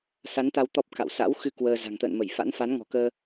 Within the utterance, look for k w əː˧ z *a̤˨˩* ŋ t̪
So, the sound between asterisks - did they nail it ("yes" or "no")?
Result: yes